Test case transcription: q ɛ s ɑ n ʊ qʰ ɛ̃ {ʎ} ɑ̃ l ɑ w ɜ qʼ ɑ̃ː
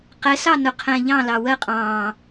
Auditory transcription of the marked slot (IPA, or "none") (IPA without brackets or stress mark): ʎ